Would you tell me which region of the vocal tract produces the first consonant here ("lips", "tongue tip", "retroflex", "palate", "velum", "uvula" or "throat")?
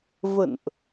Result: lips